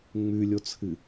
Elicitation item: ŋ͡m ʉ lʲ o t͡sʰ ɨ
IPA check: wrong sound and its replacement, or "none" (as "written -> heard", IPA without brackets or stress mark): none